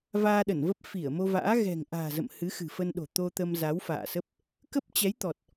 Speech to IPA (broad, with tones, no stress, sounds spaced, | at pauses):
v aː˧ ɗ ə˧˩ n v ə˦˥ p̚ f i˧˩ ə̯ m o˧ v a̰ː˧˥ ɣ ɛ̤˨˩ ŋ ʔ a̤ː˨˩ z ə̰˧˨ m h ɨ˨˦ x ɨ̤˨˩ f ə˧ n ɗ o̤˨˩ t̪ o˧ t̪ ə˧ m z a˨˦ w f a̰ː˧˨ s ə˦˥ p̚ | k ə˦˥ p̚ t͡ɕ ɛ˨˦ j t̪ ɔ˨˩ t̚